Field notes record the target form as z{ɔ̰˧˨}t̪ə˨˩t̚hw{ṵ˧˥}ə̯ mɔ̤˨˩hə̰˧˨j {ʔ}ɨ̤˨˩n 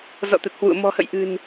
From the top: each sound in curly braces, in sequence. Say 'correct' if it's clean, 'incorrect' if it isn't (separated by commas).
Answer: correct, incorrect, correct